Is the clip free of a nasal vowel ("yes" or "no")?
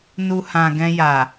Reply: no